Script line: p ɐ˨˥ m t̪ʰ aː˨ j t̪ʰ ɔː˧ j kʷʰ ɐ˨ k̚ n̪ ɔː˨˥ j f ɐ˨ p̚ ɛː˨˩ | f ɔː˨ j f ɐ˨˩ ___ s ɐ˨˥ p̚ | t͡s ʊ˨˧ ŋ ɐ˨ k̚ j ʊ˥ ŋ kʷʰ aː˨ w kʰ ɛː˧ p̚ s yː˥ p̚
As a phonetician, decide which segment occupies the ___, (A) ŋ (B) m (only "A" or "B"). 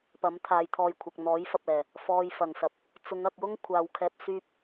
A